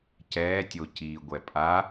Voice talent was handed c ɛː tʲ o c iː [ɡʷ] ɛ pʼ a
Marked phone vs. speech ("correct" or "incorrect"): correct